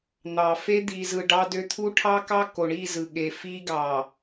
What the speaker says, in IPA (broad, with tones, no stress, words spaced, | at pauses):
n̪ɑ˨fe˦ d̪i˨zɯ˨ ɖɑ˦dø˦ t̪ʰu˦ʈʰɑ˦kɑ˦ ko˨ɳi˦˨zɯ˨ ɠe˨fi˦ ɡɑ˨